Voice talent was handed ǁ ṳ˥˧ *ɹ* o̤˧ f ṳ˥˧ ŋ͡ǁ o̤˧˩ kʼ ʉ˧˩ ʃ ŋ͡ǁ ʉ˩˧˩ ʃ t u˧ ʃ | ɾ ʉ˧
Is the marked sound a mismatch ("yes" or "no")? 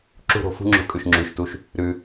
yes